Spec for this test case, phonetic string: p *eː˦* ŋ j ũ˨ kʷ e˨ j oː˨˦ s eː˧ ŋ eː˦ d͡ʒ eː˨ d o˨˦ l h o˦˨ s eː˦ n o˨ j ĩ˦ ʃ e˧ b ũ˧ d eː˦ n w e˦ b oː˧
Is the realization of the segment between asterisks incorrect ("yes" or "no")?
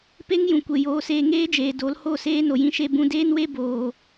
yes